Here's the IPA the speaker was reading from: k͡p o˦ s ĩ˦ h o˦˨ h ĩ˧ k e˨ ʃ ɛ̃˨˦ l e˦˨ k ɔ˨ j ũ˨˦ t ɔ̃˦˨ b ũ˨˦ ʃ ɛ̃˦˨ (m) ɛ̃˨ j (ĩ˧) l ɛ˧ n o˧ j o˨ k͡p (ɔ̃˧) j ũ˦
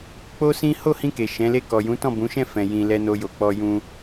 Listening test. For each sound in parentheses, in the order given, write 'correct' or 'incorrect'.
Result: incorrect: f, incorrect: ĩ˨, incorrect: ɔ˧

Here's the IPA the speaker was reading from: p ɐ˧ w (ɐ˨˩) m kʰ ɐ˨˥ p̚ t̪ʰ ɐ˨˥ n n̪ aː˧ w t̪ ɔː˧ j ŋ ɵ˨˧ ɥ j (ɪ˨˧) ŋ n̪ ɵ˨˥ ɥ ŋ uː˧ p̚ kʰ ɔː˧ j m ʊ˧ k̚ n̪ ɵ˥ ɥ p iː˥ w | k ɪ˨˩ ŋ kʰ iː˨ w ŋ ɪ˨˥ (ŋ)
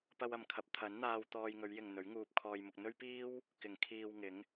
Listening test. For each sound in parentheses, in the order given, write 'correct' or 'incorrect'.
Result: incorrect: ɐ˨, incorrect: ɪ˨, correct

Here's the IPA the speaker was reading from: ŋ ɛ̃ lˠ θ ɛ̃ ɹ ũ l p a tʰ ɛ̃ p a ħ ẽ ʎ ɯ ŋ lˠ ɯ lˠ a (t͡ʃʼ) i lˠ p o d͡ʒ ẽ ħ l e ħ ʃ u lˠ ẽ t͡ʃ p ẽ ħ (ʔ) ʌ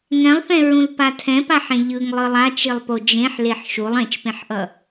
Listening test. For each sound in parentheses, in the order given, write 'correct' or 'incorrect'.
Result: incorrect: t͡ʃ, correct

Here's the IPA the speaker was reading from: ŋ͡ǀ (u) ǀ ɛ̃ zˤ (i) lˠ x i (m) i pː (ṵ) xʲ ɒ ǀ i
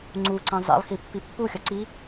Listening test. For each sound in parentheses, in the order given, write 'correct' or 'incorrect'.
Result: correct, incorrect: ḭ, incorrect: pː, incorrect: u

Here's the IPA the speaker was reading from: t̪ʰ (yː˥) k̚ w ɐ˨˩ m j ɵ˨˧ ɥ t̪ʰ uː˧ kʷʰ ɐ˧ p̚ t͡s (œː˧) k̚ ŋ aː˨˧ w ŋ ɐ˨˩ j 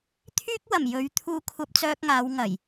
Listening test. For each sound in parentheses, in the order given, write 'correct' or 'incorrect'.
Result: correct, correct

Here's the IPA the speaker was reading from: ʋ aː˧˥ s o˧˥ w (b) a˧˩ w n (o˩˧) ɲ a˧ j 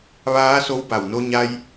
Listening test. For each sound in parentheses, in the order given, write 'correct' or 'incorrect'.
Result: correct, incorrect: o˧

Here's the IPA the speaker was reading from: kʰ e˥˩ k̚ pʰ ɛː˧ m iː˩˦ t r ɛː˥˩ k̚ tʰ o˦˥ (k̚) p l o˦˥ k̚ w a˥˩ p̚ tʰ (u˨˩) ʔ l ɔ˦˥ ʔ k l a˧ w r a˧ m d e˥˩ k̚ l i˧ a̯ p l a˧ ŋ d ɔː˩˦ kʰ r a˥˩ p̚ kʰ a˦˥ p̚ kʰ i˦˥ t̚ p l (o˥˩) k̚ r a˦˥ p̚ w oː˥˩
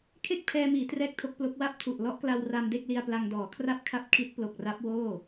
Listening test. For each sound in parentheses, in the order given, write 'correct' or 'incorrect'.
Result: correct, correct, incorrect: o˨˩

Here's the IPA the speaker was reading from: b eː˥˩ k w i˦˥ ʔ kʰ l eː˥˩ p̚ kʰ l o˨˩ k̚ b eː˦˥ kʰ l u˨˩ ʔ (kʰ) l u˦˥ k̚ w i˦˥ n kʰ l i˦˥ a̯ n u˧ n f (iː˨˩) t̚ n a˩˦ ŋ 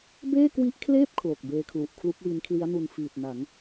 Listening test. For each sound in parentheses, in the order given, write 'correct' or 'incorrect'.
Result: correct, correct

